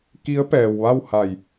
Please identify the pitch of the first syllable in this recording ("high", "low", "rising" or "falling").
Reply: rising